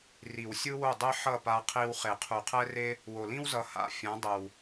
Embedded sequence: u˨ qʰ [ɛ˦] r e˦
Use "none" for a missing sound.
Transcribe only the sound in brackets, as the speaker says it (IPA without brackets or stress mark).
ɛ˦